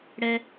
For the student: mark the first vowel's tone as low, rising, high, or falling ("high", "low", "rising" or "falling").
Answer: low